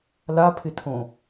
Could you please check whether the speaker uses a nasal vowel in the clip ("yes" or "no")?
yes